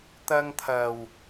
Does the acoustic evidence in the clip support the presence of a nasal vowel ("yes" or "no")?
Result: no